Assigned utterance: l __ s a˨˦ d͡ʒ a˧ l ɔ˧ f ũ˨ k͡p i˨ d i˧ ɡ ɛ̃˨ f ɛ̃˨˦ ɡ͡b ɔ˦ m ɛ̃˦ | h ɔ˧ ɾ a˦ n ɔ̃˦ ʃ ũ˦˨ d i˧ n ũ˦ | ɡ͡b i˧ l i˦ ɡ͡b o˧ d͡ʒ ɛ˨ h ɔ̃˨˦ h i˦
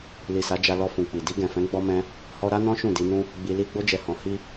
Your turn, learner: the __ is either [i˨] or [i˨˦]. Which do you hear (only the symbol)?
i˨